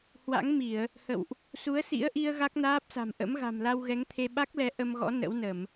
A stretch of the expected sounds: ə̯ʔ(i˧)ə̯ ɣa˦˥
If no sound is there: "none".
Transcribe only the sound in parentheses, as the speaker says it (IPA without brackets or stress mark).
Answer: i˧